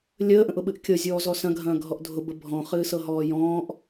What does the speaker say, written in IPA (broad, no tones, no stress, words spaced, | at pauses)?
lʲəːʔə̃ʔʊɓɨʔ kʲɤzʲɔːzɔ sɐ̃ɡʱɐ̃ːɡʱɔʔ dʱʊbə bʱɔ̃χɨːsɤɦɔː jɔ̃ːʔ